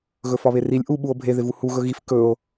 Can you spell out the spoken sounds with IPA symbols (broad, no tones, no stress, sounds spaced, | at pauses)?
ɣ ɵ f ɒ β e r i lʲ ʔ u ɓ u o̯ bʱ e ð ɪ v u h u ɣ ɵ ɣ i f k ɵ o̯